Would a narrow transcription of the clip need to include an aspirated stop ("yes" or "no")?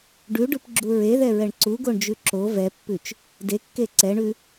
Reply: no